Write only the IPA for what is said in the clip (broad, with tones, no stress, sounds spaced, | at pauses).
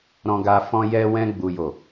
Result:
ɾ ɔ̃˧ ɡ a˧ f ɔ̃˧ j ɛ˧ w ɛ̃˧ ɡ͡b u˨ j o˨